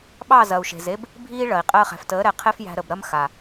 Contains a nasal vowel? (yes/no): no